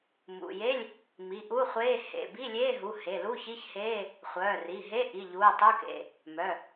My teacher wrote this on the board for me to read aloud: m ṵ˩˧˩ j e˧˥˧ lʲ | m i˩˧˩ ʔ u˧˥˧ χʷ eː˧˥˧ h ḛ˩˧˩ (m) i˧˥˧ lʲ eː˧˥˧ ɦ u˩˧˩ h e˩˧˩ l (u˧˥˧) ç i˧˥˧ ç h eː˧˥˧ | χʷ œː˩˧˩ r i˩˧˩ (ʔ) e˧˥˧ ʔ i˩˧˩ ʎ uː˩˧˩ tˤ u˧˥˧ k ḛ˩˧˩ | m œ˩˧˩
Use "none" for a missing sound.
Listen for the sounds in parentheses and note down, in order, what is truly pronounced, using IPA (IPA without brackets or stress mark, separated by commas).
b, u˧˥˧, ɦ